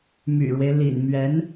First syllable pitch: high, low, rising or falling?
low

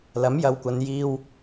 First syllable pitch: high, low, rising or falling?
rising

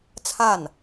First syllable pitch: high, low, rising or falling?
falling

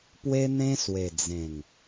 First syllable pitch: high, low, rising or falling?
high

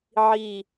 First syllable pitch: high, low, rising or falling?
low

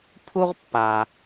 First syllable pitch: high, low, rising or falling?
high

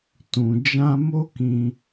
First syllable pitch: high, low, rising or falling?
low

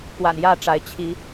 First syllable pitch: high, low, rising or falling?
low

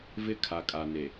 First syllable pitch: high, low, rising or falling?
falling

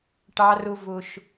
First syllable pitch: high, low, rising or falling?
high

